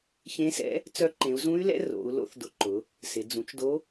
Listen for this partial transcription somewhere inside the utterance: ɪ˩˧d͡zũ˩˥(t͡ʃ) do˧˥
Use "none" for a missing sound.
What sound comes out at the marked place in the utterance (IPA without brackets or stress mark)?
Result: t͡ʃ